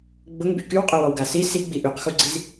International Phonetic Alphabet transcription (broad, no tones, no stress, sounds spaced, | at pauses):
ɡ͡b ʊ ŋ b y k y w qʼ ø w ɔ w ɡ a s i s i ɡ͡b i ʔ y q x u ɡ͡ǀ i z